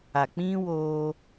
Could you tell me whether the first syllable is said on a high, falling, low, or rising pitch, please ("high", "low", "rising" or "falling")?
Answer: low